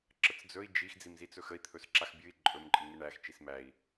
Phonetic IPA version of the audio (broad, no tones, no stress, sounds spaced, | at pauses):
ǁ ə t͡s d͡z ɵ i̯ d͡ʒ i x d͡z i m z i t͡s ɵ x ə i̯ t̪ʰ ɵ s ǁ a x bʲ ɨ i̯ ǃʼ ɵ m ǃʼ ɨ ŋ ɨ ɳ æ x t͡ʃ i s m æ i̯